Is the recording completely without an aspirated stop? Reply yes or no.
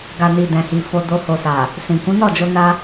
yes